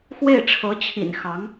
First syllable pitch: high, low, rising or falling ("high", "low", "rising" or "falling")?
falling